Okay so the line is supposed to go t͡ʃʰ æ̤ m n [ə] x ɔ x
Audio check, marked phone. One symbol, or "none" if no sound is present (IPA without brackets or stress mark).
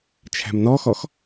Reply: ɔ